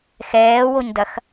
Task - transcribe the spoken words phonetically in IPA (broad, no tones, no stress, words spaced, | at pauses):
xɛːwoɲdɐx